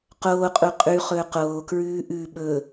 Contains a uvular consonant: yes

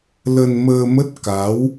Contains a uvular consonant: no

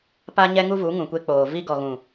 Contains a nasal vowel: yes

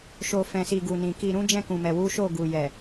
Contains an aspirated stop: no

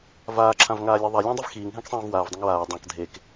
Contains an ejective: no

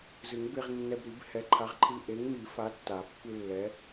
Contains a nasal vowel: no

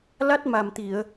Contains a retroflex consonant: no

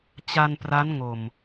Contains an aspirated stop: no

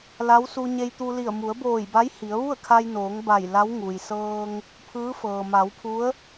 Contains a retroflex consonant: no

